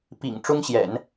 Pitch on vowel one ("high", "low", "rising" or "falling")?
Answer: low